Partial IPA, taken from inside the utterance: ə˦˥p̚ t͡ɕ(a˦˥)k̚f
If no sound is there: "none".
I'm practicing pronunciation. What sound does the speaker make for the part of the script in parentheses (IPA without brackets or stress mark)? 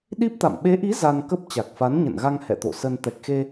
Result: a˨˩